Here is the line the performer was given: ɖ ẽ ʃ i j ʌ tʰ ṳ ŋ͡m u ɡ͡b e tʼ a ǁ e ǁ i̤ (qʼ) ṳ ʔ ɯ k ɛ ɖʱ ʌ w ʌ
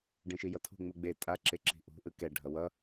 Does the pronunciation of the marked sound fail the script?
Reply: yes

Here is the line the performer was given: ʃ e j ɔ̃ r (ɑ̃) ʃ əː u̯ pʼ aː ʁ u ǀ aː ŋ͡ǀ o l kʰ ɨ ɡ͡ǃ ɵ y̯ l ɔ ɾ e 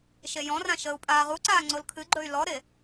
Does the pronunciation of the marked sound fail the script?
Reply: yes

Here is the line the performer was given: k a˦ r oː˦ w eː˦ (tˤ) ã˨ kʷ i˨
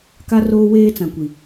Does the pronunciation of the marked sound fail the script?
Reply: yes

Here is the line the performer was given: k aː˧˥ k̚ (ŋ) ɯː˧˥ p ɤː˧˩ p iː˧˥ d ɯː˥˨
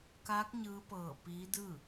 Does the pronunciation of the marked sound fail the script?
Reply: yes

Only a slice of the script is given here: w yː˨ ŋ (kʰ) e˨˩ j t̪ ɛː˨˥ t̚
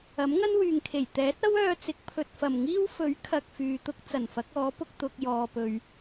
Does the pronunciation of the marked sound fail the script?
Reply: no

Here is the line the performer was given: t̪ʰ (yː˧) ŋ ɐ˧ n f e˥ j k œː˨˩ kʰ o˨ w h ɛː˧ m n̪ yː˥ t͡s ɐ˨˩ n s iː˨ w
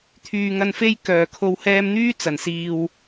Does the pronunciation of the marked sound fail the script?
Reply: yes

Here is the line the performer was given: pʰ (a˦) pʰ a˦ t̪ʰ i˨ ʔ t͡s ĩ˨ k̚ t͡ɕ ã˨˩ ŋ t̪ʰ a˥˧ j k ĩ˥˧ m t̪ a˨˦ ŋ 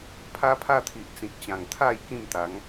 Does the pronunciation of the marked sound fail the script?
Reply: no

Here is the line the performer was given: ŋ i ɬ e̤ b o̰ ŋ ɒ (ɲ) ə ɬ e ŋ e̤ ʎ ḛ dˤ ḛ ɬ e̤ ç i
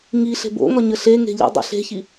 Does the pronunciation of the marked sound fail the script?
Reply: no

